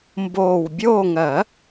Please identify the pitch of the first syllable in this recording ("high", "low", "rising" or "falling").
low